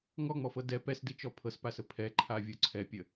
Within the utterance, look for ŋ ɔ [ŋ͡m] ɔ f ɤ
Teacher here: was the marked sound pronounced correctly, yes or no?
yes